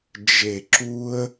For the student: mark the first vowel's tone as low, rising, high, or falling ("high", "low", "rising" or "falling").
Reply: low